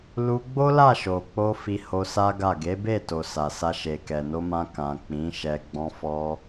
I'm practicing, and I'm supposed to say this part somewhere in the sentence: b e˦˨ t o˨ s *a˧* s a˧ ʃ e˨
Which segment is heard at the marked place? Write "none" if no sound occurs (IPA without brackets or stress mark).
a˨